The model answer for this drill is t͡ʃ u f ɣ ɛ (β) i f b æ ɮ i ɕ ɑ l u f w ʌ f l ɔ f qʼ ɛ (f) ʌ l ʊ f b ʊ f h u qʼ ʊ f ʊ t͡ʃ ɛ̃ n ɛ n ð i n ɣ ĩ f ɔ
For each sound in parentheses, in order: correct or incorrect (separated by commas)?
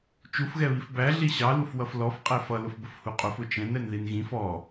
correct, correct